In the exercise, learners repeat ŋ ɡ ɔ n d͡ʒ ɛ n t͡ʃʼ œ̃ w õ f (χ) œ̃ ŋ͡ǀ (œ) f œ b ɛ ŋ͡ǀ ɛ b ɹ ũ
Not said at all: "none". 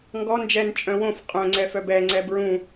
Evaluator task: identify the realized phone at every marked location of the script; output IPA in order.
qʼ, ɛ

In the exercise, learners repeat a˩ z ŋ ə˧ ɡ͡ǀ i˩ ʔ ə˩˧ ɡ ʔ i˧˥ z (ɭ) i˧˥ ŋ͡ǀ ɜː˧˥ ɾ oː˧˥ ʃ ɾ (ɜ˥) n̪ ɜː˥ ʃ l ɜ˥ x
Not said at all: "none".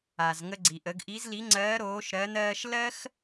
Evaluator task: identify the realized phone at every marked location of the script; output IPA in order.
l, ɜ˧˥

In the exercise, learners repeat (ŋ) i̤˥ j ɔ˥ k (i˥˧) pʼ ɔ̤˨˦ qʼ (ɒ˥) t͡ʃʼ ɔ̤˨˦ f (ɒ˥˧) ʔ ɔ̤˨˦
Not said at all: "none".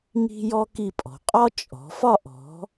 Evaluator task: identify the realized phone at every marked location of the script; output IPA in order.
ŋ, i˥˧, ɒ˥, ɒ˥˧

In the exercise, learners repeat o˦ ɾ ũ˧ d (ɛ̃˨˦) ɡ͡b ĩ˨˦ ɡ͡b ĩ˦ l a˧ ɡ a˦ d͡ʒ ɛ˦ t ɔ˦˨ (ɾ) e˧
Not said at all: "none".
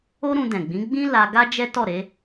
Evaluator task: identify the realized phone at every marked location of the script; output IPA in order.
ɛ̃˨, ɾ

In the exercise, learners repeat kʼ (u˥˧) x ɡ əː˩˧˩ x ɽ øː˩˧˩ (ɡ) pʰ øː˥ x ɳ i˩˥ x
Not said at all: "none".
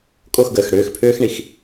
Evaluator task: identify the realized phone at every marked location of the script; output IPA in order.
o˥˧, x

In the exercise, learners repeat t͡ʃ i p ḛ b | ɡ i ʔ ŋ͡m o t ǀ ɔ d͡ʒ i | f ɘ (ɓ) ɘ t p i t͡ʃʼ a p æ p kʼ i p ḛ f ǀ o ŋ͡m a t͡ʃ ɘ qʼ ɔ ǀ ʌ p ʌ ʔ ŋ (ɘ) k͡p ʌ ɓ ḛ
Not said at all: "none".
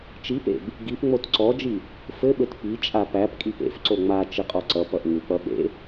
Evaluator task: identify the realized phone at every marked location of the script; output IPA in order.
ɓ, ʉ

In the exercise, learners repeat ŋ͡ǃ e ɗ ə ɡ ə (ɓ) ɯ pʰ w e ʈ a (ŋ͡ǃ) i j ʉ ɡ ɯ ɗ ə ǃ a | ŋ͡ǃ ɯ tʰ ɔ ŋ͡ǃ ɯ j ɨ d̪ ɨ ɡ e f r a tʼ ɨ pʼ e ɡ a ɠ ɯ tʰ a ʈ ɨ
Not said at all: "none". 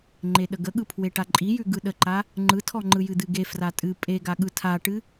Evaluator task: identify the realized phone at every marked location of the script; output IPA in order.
ɠ, ǃʼ

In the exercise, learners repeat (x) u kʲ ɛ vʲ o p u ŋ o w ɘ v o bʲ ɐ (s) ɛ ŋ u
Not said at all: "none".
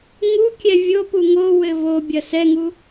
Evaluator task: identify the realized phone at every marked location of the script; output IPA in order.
ŋ, s

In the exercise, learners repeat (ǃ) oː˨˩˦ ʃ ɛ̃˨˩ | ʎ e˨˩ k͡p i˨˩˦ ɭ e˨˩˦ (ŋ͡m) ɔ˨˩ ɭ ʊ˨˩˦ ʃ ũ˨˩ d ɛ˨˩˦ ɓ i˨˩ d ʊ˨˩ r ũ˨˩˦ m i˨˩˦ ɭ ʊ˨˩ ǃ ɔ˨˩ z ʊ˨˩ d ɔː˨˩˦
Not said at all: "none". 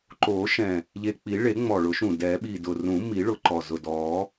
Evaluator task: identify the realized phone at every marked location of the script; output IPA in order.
ǃ, ŋ͡m

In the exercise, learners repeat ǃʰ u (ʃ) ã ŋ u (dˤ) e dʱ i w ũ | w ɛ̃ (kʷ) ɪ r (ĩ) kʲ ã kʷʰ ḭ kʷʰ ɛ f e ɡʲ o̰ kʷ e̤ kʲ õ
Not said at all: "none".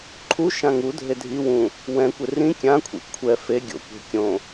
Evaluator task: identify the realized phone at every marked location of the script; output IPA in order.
ʃ, dʱ, kʷ, ĩ

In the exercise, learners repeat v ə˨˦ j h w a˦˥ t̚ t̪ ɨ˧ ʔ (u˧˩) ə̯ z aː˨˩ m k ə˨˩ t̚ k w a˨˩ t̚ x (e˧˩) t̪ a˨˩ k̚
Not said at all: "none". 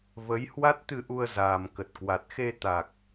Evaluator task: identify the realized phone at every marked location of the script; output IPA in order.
u˧, e˧

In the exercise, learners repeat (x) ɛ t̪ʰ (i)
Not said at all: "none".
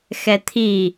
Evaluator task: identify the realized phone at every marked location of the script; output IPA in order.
x, i

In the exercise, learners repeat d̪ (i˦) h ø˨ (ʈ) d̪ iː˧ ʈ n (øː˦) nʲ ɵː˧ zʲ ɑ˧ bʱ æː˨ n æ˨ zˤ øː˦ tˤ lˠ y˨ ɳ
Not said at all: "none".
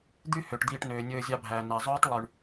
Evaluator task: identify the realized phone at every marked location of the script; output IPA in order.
y˦, ʈ, øː˨

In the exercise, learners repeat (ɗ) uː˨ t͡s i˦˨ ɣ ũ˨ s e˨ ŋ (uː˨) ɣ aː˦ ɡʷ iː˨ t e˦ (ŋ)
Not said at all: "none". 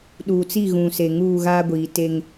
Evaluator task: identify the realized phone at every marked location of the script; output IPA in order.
ɗ, uː˦˨, ŋ

